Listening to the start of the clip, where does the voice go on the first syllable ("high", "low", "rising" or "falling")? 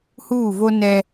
falling